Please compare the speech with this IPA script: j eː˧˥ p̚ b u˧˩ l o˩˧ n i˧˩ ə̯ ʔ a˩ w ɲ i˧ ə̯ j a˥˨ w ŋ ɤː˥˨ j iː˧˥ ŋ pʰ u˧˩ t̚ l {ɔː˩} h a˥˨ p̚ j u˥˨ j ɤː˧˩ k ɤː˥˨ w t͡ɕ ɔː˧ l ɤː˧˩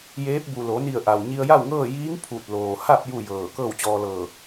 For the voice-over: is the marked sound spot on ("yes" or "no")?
no